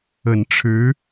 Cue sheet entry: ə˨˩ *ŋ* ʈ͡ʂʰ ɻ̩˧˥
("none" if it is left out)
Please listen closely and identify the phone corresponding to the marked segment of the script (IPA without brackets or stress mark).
n